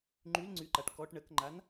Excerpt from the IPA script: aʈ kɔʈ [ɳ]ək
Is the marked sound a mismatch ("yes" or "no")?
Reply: no